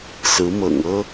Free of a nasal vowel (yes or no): yes